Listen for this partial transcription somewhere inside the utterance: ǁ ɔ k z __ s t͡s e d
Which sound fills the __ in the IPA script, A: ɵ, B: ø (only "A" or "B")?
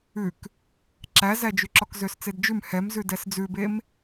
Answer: B